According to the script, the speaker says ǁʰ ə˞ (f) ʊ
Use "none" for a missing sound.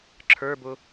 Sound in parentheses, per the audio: b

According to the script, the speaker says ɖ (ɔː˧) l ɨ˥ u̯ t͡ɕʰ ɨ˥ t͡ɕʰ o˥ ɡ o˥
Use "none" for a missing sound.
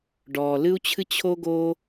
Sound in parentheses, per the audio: ɔː˧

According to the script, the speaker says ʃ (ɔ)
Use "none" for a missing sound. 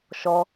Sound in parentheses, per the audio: ɔ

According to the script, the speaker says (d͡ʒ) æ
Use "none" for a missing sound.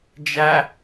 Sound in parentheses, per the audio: d͡ʒ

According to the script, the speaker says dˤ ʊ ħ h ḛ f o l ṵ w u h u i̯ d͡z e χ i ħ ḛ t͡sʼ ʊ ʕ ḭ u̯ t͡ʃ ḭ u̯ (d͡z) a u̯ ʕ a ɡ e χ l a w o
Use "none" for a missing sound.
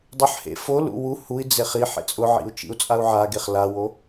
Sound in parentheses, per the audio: t͡sʼ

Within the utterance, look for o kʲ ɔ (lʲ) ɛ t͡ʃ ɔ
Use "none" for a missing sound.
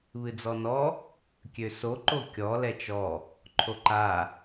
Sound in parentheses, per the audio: l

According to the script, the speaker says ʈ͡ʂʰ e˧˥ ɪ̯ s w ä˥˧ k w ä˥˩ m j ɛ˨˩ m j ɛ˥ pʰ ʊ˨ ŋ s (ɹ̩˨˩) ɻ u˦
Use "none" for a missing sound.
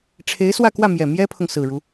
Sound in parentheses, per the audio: ɹ̩˨˩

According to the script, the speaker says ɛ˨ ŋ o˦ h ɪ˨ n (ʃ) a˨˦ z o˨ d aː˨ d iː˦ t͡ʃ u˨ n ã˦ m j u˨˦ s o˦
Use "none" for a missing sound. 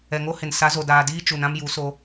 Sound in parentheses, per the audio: s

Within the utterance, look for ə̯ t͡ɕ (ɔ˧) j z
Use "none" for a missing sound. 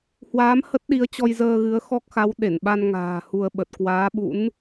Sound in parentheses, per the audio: ɔ˧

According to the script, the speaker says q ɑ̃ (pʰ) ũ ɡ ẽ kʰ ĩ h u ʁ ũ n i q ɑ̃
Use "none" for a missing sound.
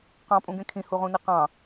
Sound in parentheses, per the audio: pʼ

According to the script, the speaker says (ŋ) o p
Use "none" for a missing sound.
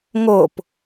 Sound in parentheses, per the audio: ŋ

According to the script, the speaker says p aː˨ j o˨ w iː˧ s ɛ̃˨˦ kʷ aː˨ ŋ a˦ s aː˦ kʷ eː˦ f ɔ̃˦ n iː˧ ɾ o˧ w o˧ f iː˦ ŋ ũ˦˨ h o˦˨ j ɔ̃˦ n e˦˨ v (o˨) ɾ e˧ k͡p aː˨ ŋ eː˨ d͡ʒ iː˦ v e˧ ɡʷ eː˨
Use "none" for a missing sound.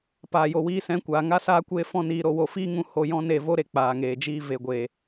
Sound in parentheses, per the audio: o˦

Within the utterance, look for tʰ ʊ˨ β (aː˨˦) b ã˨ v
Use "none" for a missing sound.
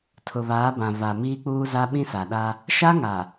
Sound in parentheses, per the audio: aː˨˦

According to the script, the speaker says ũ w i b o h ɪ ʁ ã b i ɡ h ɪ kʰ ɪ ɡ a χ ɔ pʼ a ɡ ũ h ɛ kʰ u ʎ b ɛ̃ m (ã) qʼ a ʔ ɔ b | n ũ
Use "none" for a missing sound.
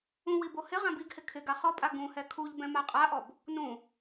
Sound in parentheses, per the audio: a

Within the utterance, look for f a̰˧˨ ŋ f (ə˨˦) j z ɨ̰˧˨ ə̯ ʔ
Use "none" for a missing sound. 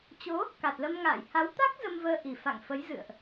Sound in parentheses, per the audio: ə˨˦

